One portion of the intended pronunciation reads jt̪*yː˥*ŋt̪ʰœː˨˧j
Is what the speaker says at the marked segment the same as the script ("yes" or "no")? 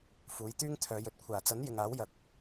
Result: yes